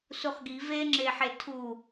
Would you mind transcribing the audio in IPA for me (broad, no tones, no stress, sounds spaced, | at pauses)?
s u χ ɡ i v e ŋ͡ǁ e ħ e tʰ u